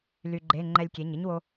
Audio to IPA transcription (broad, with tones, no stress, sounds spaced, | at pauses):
l y˧ ɡ͡ǃ e˧˥˧ ŋ͡ǃ ɛ˧ lʲ kʲ e˩˧˩ ɲ ɪ˥ ɲ w o˧